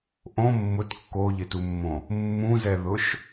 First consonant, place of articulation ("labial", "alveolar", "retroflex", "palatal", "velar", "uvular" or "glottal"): glottal